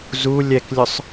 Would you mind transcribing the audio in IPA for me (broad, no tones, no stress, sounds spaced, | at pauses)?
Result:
z u lʲ ɛ k lʲ ʊ sˤ